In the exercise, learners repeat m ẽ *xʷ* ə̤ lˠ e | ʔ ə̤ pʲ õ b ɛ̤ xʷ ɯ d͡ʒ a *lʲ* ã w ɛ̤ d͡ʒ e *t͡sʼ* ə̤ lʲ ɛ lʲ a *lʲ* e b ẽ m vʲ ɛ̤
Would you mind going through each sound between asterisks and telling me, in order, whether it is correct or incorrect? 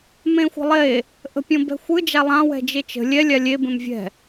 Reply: correct, incorrect, incorrect, correct

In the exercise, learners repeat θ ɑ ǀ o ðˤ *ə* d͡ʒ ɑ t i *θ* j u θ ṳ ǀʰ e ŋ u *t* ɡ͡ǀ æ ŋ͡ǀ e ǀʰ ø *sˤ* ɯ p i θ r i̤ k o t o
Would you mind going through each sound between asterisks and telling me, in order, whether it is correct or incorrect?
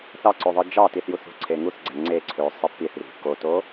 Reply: incorrect, correct, incorrect, correct

